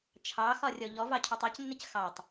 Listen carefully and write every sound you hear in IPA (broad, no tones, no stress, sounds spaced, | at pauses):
t͡ʃʰ ɑ x ɒ rʲ ɔ ʎ ɔ v ɑ cʰ u tˤ ɒ c nː ɪ c x ɑ tˤ